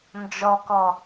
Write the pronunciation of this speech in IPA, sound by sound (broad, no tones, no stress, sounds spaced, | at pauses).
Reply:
n d͡ʒ ɔ k ɔ